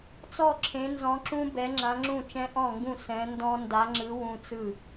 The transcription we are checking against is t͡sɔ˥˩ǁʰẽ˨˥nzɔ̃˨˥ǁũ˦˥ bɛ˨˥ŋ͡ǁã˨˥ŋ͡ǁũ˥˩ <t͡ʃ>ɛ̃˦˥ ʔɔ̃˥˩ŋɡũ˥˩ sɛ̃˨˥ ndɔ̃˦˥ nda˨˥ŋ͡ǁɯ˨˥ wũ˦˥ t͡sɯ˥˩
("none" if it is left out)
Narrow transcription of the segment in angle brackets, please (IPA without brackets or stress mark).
t͡ʃ